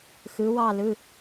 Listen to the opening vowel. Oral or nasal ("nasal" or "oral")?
oral